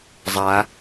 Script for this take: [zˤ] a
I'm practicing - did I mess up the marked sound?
no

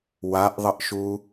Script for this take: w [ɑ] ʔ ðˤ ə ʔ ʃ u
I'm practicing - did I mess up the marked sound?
yes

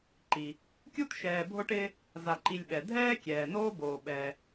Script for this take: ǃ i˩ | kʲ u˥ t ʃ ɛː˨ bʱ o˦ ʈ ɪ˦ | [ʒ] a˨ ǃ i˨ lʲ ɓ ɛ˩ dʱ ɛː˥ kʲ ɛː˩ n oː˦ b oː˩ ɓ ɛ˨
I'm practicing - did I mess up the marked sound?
yes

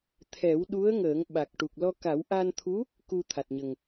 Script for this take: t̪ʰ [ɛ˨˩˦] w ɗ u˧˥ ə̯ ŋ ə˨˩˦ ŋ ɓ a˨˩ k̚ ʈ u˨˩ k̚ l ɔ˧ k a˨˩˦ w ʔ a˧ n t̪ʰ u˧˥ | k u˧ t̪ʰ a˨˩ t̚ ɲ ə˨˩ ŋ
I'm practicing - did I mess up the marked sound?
no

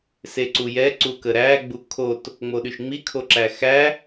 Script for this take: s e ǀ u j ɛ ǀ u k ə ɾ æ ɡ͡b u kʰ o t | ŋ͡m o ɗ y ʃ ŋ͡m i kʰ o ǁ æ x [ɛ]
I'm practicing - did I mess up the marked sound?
yes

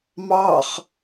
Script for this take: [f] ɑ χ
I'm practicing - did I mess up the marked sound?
yes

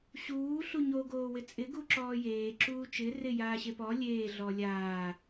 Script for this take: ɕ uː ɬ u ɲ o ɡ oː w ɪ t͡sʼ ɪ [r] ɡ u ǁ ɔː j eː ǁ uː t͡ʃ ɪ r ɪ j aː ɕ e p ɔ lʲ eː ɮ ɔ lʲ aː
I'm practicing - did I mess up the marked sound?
yes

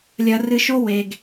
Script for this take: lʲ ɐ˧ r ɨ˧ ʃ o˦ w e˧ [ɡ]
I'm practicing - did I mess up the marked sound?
no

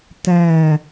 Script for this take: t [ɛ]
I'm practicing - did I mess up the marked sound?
yes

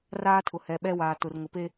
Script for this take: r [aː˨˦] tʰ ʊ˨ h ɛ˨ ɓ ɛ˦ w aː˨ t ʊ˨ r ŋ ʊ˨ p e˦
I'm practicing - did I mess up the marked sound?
yes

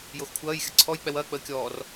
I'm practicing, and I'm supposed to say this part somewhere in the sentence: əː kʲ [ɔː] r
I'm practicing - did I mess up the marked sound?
no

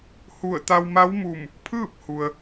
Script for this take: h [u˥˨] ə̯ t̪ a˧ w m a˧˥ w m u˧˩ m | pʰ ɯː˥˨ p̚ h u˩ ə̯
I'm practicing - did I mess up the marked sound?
yes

